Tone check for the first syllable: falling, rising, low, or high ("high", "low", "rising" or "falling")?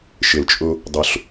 low